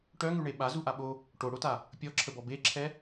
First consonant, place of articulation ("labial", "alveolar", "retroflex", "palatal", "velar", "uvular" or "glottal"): retroflex